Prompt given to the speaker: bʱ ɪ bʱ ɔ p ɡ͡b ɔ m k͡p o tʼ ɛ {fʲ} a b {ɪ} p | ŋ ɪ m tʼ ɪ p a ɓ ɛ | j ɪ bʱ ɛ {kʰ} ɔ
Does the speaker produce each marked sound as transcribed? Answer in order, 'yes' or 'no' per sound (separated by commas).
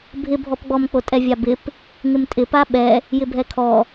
no, yes, yes